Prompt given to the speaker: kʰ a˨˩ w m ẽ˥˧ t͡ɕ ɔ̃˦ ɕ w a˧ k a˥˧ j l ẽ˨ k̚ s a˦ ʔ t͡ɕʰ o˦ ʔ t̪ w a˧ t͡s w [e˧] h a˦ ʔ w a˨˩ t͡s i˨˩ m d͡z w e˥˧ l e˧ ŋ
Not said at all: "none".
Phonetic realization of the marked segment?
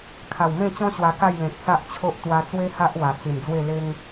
e˦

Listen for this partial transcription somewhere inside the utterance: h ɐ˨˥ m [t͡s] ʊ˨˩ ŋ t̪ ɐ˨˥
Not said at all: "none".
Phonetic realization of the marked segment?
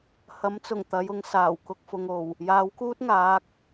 t͡s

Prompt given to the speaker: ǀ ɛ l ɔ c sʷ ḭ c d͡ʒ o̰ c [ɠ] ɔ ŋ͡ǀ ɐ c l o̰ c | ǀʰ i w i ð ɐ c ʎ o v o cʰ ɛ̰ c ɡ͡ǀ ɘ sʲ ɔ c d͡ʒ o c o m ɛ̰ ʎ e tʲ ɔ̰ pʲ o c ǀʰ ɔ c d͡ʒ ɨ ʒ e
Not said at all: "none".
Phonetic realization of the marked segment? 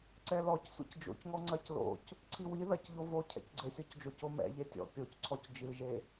ŋ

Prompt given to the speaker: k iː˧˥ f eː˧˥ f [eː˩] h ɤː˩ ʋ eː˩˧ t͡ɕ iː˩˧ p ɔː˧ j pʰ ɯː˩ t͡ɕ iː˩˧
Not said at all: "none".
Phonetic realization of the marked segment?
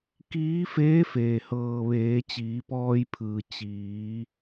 eː˩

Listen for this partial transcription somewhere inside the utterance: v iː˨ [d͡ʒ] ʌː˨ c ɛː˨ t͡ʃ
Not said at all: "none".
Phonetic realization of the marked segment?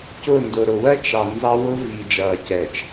d͡ʒ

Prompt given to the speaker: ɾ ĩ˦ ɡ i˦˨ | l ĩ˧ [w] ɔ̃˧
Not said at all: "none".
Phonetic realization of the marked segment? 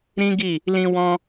w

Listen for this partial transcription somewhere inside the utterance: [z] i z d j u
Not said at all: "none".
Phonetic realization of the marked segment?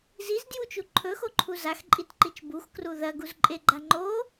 z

